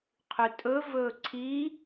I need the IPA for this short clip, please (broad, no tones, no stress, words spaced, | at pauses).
qʰʉtʼɵvɵː ǀʰi